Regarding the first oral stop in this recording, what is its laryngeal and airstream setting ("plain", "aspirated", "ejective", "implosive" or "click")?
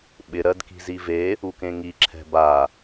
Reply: implosive